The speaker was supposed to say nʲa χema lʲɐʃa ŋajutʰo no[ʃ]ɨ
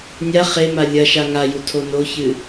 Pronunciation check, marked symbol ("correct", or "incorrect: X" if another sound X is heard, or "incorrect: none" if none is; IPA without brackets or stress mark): incorrect: ç